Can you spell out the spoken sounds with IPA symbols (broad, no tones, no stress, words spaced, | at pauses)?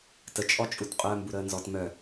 tət͡ʃʼɔt͡ʃʼut qʼœmbuɾəː nzɔt mœ